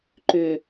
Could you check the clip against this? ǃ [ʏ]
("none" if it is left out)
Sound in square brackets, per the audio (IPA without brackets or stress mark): ʏ